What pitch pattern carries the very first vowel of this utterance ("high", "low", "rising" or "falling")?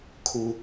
low